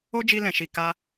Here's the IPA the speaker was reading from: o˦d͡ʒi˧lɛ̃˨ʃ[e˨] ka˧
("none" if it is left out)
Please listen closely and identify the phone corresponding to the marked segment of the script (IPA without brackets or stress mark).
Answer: i˨